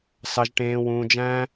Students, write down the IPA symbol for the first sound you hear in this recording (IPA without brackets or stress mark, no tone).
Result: s